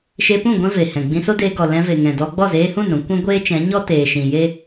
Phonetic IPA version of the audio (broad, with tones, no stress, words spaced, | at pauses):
ʃe˧pũ˦˨ ɡʷɛ̃˦ ve˨hɛ̃˨ ɡ͡bĩ˧so˦deː˧ ɡɔ˨ lɛ̃˧ve˨ŋɛ̃˨dɔ˧ ɡ͡bɔ˦˨zeː˧hũ˦˨n ɾũ˧kʷɛ̃˦ ɡʷeː˦t͡ʃɛ̃˨˦ɲɔ˦teː˨ ʃĩ˨je˦